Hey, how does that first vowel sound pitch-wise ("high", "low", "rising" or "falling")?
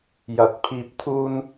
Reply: rising